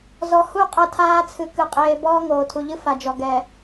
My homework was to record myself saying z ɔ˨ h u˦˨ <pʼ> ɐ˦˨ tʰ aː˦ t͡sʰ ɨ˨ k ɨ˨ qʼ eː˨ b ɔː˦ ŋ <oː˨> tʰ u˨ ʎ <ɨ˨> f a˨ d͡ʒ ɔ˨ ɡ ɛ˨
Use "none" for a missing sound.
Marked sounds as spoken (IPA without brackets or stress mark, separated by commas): qʼ, oː˨, ɨ˦